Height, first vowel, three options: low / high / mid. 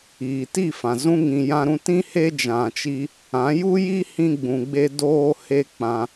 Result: high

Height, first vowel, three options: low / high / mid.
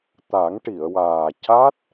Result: low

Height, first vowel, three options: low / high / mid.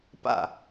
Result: low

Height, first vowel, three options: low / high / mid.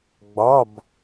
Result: low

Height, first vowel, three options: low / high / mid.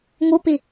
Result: high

